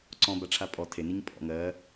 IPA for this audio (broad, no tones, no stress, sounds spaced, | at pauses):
ǀ ɔ̃ b a ʈ͡ʂʰ a pʼ ɔ tʰ e n i ɲ pʼ ɔ̰ ŋ ɜ